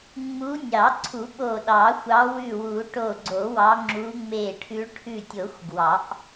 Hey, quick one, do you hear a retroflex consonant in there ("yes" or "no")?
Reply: yes